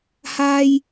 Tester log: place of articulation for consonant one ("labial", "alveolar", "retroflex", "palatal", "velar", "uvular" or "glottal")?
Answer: glottal